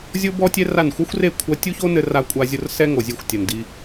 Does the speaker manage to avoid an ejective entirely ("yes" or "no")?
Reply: no